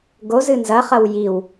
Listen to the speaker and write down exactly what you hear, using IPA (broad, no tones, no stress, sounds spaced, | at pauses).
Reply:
ɡ o z ɨ n z ɐ χ ɐ w j i w